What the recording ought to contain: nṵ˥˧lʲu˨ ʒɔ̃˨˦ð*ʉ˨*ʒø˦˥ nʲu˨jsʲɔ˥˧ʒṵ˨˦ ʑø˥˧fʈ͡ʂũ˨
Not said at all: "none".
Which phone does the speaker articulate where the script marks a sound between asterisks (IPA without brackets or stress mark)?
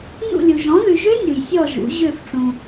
ʉ˨